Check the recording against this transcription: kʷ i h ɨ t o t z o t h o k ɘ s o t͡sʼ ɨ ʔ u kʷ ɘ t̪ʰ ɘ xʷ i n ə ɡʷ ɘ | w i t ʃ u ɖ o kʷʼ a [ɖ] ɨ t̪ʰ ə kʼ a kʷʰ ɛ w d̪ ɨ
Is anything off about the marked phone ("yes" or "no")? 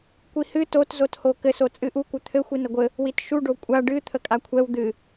no